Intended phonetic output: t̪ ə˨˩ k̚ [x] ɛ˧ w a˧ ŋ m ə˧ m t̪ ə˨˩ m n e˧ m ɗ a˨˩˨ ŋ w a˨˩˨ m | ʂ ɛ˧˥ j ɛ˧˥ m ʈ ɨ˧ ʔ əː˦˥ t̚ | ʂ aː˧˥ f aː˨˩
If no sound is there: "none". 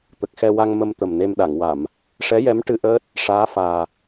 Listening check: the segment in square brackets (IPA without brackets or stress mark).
x